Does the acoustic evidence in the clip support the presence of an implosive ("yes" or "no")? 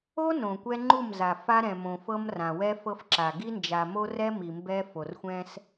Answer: no